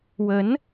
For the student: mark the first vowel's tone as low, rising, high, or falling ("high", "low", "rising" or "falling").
rising